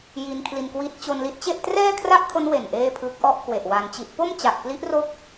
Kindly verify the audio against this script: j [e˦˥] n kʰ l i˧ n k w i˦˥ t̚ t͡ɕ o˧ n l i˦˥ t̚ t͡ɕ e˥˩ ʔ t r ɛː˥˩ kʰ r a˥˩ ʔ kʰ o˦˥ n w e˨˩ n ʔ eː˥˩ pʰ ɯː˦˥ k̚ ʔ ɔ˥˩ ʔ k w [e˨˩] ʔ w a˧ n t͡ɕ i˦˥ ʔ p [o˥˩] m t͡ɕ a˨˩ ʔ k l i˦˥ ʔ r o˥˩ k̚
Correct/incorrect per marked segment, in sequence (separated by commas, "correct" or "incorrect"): incorrect, correct, correct